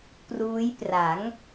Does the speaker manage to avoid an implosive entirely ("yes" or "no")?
yes